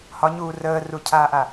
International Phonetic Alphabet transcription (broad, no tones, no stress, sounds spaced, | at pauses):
h ɒ ɲ uː r əː r u cʰ aː ʔ a